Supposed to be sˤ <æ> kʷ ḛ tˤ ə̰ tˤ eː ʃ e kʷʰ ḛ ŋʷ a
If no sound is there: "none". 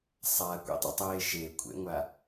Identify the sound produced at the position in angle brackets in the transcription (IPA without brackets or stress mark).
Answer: a